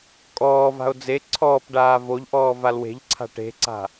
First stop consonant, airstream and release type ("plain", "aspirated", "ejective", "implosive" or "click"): ejective